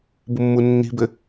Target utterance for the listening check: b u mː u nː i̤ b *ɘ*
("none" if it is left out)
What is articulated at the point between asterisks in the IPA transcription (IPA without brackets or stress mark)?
ɘ